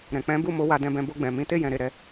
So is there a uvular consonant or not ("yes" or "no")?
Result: no